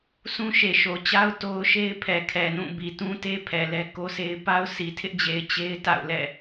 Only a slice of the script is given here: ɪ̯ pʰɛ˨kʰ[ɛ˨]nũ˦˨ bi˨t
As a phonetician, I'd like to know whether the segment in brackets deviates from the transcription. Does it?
no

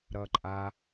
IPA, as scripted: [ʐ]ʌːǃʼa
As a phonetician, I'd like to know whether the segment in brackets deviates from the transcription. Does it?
yes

